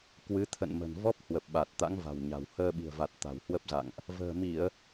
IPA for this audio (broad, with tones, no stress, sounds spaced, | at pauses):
k w ɨ˨˦ t̪ʰ ə̰˧˨ n m ə̤˨˩ n v ɔ˦˥ p̚ h w ə˨˩ p̚ ɓ a˨˩ t̚ t̪ a̰˧˥ ŋ v a̤˨˩ w ɲ a̤˨˩ w h əː˧ ɓ i̤˨˩ ə̯ v a˨˩ t̚ t̪ a̤˨˩ w h w ə˦˥ p̚ z a̰˧˨ ŋ ʔ | v ə̤ː˨˩ m i˧˩˨ ə̯